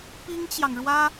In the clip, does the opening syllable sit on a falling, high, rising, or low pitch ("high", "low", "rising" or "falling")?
high